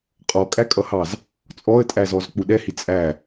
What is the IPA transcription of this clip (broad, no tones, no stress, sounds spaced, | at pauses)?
qʼ ɔ kʼ æ kʼ ʌ h ɑ z | t͡sʼ ɔ ə̯ tʼ æ z ɔ z k͡p u ɗ ɛ h i t͡sʼ æ